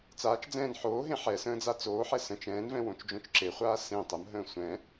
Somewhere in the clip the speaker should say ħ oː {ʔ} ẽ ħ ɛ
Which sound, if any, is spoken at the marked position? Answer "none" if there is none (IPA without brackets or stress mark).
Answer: ɦ